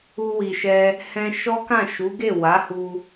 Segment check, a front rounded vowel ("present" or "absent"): absent